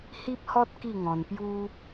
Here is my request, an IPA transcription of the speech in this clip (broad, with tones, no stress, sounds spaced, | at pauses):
h i˦ p̚ h ɔ˦ t̚ k i˥˧ ŋ ɔ̃˧ n p j u˦